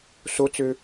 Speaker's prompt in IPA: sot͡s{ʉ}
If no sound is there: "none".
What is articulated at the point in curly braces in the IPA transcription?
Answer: ø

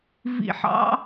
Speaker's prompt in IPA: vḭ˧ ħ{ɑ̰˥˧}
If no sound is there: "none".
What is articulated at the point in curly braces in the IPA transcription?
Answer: ɑ̰˥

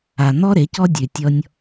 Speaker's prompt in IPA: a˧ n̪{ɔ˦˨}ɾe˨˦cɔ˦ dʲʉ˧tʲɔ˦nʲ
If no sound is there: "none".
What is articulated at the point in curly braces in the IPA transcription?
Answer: ɔ˦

